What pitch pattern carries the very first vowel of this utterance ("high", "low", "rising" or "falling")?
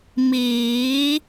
rising